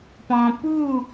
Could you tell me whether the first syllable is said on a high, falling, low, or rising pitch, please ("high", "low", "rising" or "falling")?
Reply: low